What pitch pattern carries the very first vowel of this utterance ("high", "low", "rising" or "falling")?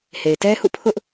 low